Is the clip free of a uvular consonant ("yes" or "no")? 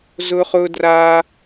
no